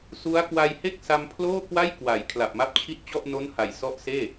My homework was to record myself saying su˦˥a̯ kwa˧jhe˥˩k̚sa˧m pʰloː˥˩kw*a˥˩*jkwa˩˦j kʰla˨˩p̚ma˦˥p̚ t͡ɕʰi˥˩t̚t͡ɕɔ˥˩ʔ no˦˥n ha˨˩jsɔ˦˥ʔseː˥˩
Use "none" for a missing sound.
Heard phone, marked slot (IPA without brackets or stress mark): a˥˩